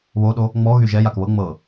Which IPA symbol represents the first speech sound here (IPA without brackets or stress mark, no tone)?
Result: β